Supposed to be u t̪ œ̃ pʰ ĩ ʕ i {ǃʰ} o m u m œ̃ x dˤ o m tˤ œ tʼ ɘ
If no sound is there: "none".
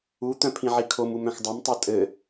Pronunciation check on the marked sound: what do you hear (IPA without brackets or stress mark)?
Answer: kʰ